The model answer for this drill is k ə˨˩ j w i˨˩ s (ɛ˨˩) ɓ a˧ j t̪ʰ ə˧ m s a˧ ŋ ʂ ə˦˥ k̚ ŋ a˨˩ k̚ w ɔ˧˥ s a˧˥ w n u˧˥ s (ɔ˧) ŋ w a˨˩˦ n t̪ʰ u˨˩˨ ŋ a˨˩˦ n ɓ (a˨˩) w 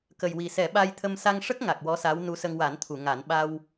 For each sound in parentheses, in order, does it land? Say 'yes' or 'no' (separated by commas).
no, no, no